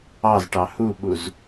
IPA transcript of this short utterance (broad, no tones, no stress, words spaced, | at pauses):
ɑzʈɑ huɓuz